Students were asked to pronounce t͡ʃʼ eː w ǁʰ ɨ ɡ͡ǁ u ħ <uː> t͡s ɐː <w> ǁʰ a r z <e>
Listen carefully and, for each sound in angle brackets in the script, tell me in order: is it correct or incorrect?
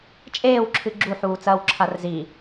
correct, correct, incorrect

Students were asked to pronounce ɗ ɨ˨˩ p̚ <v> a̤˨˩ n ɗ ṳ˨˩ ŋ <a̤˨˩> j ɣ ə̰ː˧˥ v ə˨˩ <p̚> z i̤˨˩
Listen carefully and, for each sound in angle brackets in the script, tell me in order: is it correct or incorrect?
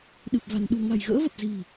correct, correct, correct

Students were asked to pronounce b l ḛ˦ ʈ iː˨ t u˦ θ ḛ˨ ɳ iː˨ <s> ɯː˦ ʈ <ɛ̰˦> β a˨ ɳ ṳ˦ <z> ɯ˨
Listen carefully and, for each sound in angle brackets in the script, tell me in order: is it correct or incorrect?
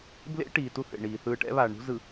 incorrect, correct, correct

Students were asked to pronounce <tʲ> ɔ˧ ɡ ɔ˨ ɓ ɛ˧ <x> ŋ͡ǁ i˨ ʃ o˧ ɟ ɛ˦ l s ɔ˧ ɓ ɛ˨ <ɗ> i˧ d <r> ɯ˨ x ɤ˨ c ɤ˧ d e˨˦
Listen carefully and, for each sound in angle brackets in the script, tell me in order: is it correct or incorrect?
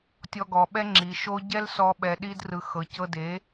correct, incorrect, correct, correct

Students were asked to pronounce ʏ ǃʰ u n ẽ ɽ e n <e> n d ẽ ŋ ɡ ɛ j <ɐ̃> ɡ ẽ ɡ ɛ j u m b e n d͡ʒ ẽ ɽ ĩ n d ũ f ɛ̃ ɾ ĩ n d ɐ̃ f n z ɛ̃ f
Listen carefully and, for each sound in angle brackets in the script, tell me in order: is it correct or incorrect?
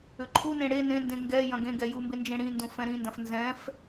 incorrect, correct

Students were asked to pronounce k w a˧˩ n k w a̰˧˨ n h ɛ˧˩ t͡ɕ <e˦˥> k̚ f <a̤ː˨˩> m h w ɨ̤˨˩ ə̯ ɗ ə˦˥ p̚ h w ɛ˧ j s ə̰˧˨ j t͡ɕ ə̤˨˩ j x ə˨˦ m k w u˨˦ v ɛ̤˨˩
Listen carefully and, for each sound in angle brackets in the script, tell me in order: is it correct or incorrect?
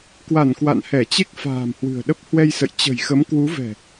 correct, correct

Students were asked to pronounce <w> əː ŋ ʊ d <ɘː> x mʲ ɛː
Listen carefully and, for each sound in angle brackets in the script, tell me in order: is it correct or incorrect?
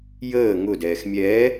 incorrect, incorrect

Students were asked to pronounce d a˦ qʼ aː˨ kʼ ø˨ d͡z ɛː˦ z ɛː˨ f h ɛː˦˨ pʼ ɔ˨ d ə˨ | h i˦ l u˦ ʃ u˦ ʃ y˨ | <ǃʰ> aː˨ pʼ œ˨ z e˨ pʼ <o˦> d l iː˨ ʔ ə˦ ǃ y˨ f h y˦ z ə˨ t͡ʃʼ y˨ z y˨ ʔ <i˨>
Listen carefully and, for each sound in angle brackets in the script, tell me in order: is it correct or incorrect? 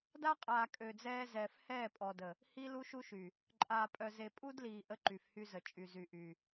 incorrect, incorrect, incorrect

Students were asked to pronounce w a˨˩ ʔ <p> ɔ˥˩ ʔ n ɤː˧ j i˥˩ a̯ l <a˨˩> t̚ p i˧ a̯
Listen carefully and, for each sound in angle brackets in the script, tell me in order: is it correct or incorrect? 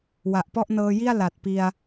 correct, correct

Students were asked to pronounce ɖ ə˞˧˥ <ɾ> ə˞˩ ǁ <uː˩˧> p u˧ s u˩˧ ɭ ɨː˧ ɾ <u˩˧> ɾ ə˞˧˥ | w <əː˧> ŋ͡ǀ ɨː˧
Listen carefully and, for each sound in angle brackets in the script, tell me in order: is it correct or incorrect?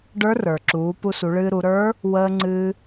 incorrect, correct, correct, correct

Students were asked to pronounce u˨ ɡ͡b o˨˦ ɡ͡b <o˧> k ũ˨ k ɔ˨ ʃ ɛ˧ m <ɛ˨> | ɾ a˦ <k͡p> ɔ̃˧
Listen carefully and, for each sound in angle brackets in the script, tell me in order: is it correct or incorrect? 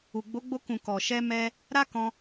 correct, incorrect, incorrect

